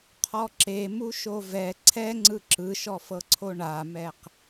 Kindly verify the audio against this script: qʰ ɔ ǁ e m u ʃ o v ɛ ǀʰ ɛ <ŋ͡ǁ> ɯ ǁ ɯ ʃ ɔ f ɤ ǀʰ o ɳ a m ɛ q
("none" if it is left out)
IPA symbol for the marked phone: ŋ͡ǀ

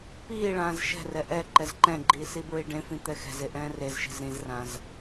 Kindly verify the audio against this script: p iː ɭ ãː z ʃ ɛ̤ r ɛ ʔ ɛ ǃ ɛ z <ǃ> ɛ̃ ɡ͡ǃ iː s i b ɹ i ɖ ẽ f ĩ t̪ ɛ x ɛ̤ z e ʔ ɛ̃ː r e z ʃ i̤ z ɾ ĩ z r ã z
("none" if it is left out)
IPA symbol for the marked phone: ǃ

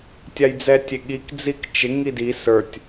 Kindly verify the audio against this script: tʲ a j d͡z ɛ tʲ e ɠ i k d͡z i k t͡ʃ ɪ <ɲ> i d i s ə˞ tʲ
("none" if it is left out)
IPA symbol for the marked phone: ŋ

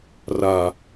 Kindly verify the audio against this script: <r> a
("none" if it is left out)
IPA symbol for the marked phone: r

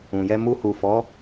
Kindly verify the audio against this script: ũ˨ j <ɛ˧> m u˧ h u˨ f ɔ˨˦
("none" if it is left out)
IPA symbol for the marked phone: ɛ˧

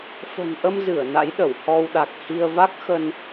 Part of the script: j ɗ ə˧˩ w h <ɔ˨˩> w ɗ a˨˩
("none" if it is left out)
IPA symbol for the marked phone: ɔ˧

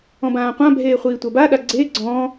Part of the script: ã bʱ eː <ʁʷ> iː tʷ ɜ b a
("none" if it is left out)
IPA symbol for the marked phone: χʷ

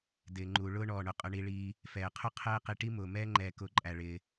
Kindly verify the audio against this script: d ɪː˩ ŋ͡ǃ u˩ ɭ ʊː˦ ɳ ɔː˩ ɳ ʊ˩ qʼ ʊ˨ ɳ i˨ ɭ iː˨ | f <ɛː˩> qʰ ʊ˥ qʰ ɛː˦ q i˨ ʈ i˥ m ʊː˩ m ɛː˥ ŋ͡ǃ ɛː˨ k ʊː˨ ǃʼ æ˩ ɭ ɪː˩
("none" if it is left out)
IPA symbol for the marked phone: ɛː˩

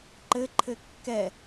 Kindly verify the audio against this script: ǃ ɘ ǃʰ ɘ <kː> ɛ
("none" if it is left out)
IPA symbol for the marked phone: kː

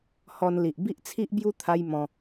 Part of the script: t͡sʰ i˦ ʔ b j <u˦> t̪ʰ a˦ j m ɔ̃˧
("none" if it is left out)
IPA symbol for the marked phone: u˦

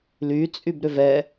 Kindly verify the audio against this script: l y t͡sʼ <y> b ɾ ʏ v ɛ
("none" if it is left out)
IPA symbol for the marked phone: y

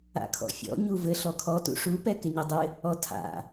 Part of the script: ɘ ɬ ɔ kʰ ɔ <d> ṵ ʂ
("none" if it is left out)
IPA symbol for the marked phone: t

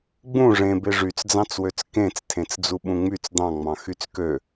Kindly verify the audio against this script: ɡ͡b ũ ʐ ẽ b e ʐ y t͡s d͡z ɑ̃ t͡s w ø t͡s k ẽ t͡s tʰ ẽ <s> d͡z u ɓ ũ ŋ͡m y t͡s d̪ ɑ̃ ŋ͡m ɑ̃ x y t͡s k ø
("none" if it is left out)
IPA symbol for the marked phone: t͡s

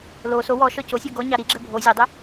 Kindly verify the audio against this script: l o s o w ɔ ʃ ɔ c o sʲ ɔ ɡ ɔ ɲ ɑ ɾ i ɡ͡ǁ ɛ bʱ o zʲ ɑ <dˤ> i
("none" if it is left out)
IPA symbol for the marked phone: dˤ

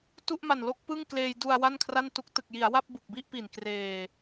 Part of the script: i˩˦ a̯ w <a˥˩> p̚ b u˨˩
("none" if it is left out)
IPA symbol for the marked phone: a˥˩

